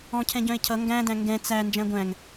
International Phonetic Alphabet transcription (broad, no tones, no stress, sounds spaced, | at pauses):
ɔ̃ cʰ ɛ̃ ɟ œ̃ e̯ cʰ ʌ ŋ ɡ æ̃ d æ̃ ŋ ɡ ɛ̃ t͡s æ n d͡ʒ æ̃ ɡʷ æ̃ ŋ